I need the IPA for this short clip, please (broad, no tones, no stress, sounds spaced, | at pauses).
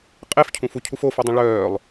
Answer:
qʼ e f cʰ ũ f u cʰ u f o f o dˤ ũ ɭ œː lˠ